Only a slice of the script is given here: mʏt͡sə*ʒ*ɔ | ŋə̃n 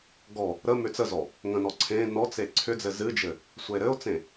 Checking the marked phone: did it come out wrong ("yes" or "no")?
yes